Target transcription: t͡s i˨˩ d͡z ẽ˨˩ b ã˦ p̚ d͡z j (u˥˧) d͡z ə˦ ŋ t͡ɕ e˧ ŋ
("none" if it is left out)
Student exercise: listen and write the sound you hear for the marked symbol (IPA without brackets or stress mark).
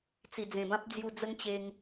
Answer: u˧